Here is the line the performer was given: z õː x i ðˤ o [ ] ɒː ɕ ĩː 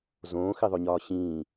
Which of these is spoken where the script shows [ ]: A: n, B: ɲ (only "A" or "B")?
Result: B